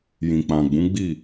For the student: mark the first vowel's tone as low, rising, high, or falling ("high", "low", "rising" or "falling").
low